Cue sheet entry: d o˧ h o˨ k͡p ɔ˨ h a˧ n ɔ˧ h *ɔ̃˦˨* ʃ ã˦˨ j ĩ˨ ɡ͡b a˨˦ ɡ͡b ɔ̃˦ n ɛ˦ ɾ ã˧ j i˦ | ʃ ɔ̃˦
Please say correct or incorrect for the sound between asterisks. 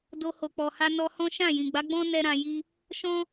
incorrect